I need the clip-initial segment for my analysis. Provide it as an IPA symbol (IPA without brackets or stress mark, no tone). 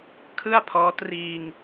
kʰ